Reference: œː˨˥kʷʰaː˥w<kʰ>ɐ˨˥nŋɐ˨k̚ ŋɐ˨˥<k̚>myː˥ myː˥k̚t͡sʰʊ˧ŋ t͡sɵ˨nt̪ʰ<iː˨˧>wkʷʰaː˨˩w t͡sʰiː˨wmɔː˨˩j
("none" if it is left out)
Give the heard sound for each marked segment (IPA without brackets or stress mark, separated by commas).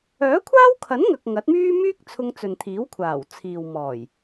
kʰ, t̚, iː˨˥